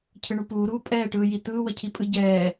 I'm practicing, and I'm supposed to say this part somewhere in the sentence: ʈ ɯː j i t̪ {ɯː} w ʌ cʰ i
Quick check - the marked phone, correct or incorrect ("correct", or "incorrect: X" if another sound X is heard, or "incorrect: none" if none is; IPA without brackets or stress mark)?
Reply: correct